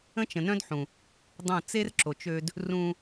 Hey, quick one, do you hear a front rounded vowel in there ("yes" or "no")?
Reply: yes